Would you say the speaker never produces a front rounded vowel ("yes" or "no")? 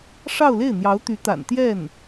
no